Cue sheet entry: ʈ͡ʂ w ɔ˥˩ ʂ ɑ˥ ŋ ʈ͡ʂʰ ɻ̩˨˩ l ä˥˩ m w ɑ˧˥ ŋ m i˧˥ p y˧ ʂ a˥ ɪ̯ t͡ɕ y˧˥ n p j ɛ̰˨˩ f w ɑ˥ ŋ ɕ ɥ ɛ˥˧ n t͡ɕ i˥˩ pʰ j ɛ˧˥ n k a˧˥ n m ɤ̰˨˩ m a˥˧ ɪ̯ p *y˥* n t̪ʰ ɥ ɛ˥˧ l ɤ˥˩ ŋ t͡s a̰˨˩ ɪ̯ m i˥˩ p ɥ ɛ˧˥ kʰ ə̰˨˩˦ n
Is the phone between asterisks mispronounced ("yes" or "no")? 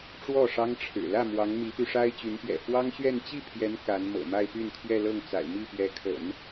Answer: yes